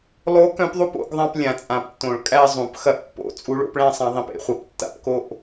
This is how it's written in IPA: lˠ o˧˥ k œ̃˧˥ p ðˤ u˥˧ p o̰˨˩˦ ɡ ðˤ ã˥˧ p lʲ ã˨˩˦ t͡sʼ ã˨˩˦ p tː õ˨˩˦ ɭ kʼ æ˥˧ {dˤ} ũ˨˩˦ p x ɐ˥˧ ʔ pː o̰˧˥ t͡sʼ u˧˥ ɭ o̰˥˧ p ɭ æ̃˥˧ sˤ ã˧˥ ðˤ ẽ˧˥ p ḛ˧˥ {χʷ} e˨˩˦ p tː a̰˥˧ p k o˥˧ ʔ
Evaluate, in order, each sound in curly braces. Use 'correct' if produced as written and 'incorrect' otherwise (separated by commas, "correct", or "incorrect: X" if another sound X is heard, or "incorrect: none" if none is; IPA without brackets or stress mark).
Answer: incorrect: zˤ, correct